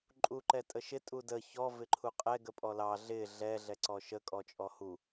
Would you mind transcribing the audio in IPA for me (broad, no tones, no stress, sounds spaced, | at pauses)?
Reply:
ǃʼ u ǃ ɛ tʼ ə ʃ ɪ tʼ u d ə ç ɔ v ɪ ǃʰ u qʼ ɛ ɡ ə pʼ ɔ l ɑ ɮ ɪ ɮ ɛ ɮ ɛ ǀ ɔ ʃ ə kʼ ɔ t͡ʃʼ ɔ h u